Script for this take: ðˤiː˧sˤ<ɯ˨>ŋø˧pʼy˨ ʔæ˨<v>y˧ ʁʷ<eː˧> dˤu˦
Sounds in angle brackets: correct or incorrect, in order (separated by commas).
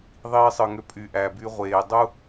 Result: correct, incorrect, incorrect